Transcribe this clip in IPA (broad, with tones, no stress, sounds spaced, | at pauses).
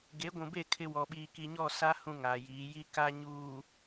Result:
ɡ e˨˦ ɡʷ ũ˨ b e˦˨ kʰ ɪ˦ w ɔ˨ ɓ iː˨ k i˨ ɲ ɔ˦˨ s a˦ h ũ˦ ŋ aː˨ j iː˨˦ j i˦ k a˦ ɲ uː˨